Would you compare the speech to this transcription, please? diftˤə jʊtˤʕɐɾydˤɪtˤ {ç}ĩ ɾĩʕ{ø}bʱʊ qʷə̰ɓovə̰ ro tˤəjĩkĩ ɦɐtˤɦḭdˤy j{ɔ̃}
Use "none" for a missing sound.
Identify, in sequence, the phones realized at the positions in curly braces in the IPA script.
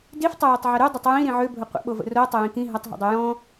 j, ø, ɔ̃

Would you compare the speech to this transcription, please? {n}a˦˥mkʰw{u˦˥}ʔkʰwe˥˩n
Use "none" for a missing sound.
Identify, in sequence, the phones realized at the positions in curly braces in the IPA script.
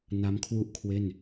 n, u˥˩

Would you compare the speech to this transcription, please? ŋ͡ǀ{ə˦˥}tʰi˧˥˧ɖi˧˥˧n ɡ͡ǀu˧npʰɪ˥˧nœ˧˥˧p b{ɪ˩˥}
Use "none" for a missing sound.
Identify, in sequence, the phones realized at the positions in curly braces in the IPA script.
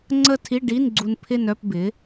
ə˥˧, ɪ˩˥

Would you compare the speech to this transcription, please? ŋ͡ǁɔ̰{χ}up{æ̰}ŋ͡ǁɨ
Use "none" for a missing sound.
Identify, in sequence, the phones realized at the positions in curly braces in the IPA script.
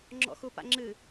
x, a̰

